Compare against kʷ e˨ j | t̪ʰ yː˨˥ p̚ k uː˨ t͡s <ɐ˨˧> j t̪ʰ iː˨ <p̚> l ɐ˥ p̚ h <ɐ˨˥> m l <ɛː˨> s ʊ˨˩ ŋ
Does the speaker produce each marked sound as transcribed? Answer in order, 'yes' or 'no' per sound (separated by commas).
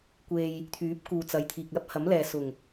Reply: yes, no, yes, yes